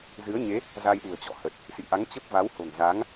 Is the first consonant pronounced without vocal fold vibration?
no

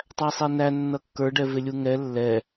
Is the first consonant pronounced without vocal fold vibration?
yes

